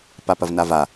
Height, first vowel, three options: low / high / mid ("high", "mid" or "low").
low